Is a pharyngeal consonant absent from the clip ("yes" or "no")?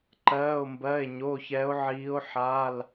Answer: no